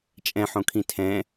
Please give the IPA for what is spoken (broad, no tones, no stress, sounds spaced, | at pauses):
t͡ʃʼ ɛ̃ ħ õ kʰ ĩ tʰ ɛ̃